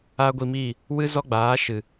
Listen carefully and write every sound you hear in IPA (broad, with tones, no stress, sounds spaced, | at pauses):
a˦ ɡʷ i˧ m i˦˨ | w ɨ˦ z ɔ˦ ɡ͡b aː˨˦ ʃ ɨ˨